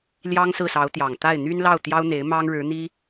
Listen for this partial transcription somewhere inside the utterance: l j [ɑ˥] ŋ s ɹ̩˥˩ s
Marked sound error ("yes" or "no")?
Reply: no